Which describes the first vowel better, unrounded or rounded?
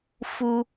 rounded